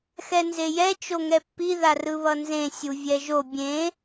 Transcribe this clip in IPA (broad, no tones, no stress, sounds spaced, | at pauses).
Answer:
x ɛ n z e j ɛ t͡ʃ o ŋ ɛ pː i ð a r ɯ β ʌ n z ẽ sʲ u vʲ ɛ ʒ o bʲ ẽ